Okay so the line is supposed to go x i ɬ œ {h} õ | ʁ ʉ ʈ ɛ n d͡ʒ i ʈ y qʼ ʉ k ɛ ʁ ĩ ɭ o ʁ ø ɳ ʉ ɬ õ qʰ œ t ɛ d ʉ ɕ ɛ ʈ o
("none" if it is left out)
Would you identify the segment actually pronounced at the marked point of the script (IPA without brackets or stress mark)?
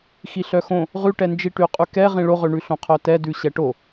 x